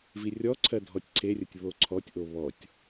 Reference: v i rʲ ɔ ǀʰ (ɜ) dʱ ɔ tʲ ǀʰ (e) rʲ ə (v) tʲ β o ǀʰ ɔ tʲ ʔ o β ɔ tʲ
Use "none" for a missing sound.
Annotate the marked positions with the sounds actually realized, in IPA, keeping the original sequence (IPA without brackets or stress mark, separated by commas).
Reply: ɜ, e, none